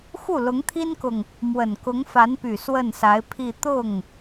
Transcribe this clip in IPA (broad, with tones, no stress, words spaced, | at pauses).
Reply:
xu˥˩lʊ˧˥ŋt̪ʰi˥nkʊ˨ŋ | mwə˨˩nkʊ˧˥ŋfa˧˥npy˨˩ swə˥˩nsa˧˥ɪ̯pʰi˥˧ t̪ʊ˥˩ŋ